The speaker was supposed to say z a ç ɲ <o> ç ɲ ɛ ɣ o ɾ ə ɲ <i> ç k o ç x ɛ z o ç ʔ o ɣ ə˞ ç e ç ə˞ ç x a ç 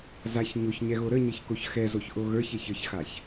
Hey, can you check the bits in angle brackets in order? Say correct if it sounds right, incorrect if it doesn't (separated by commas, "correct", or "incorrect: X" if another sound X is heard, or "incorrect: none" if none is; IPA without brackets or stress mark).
correct, incorrect: ɪ